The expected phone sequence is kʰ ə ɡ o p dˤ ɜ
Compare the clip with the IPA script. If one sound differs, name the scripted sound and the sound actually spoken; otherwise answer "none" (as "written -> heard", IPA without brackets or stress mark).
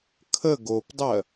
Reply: none